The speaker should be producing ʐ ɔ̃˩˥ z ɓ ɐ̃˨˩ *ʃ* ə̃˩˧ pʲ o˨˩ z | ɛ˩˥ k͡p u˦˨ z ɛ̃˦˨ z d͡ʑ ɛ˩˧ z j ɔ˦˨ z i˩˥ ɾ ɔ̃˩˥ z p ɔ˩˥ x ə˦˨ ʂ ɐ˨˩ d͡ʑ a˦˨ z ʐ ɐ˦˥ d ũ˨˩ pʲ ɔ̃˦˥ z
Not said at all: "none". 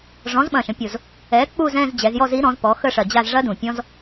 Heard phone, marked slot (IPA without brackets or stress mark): ʃ